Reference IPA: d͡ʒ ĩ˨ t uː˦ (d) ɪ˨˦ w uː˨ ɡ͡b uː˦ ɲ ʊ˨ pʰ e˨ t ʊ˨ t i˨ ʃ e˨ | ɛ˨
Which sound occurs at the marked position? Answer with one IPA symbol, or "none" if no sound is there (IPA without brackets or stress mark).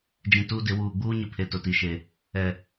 d